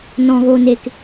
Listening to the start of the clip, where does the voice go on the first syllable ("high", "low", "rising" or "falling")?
low